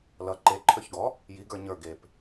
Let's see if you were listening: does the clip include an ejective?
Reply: no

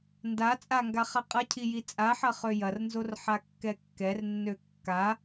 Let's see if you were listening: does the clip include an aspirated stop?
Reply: yes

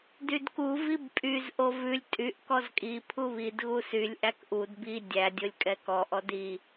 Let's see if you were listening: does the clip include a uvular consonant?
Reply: no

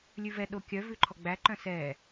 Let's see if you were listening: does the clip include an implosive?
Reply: yes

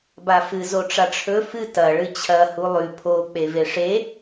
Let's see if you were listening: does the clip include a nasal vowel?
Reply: no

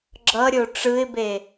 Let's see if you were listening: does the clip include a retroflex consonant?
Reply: yes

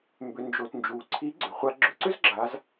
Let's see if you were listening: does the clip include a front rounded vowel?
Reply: yes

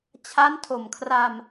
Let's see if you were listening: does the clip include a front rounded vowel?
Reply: no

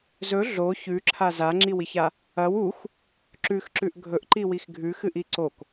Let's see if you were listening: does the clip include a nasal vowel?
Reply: no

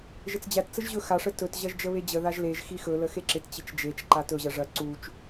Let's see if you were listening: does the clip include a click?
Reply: yes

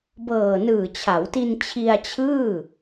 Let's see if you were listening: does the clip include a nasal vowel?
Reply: no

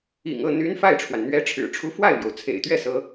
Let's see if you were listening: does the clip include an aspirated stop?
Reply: yes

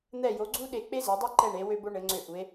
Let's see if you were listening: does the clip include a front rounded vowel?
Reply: yes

